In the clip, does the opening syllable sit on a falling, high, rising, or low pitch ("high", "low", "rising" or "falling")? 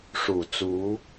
low